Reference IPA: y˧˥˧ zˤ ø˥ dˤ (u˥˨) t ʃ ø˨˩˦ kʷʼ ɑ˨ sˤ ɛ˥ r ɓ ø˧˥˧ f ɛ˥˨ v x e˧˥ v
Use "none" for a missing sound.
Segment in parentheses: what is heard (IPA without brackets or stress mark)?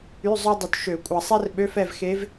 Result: u˨